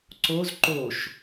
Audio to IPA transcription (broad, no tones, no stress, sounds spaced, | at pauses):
ǀ o z ǃ o ʃ